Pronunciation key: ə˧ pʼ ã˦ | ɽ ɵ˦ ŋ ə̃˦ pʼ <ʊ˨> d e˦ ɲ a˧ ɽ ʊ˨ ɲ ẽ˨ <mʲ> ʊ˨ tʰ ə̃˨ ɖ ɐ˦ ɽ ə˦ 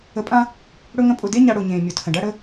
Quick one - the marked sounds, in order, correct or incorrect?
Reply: incorrect, correct

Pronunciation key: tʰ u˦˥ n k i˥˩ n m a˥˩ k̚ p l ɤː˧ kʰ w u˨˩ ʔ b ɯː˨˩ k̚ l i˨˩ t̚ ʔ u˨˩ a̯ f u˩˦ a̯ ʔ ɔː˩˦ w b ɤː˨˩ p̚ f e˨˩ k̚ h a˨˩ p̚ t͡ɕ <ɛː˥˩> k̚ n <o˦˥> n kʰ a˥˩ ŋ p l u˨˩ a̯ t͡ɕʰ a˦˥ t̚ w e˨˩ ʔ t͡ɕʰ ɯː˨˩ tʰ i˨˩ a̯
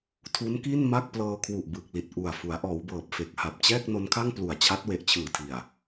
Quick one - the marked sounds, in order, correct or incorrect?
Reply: correct, correct

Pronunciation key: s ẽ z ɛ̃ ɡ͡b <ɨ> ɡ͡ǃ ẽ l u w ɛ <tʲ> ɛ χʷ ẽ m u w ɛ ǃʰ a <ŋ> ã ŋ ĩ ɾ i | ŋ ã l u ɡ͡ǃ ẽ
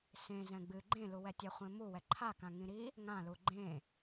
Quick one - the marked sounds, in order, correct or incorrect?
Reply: correct, correct, incorrect

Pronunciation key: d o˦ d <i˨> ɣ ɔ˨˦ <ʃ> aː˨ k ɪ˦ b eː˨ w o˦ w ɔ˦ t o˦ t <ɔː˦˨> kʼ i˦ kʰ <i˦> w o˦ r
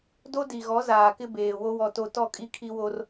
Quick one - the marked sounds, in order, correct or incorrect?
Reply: correct, incorrect, incorrect, correct

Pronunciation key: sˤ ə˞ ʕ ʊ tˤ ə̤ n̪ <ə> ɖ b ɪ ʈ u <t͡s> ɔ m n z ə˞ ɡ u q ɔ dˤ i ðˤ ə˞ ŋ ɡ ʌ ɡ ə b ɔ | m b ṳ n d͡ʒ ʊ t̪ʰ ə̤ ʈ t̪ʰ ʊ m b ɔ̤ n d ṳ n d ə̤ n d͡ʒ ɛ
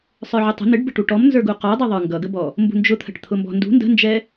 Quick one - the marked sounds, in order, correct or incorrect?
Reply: incorrect, incorrect

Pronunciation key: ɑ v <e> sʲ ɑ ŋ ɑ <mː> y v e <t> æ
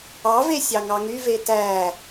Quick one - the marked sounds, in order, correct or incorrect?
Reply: correct, incorrect, correct

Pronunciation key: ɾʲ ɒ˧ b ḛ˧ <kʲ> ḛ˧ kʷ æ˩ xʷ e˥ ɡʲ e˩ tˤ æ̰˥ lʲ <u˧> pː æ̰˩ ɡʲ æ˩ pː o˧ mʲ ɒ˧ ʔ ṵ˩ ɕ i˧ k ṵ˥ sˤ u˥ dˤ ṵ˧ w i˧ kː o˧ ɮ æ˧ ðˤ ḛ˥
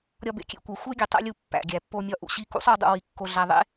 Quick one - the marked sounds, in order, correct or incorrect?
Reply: correct, correct

